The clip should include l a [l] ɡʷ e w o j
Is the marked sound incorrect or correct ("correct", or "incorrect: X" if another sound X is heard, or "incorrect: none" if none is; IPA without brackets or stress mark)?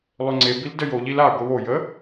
incorrect: none